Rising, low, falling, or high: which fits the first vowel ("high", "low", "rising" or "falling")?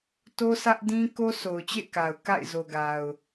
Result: high